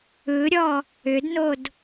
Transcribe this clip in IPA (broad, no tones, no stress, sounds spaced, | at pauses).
ɯ ɾʲ ɔ | ʏ d n o d